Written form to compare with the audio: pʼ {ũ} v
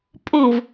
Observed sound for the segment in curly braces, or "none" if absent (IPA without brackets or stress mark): ũ